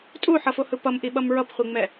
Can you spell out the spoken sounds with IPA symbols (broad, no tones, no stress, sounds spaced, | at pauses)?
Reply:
tʼ u ħ ʌ f o h ɯ p ʌ m ʔ i ɓ ʌ m ɹ ʌ p χʷ i ŋ͡m ɛ